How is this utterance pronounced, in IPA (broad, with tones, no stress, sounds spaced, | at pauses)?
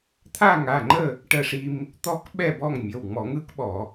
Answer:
t̪ʰ a˥˨ ŋ a˩˧˩ ŋ͡ǃ ə˥˨ | ʈ ə˦ ʂ i˦ m | t̪ ɔ˦ k ɓ ɛ˥˨ b ɔ˥˨ ŋ mʲ ə˩˧˩ w ŋ͡m ɔ˧˩˧ ŋ ɯ˦ k ɓ ɔ˧˩˧